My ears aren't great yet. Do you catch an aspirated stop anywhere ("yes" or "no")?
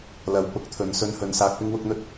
yes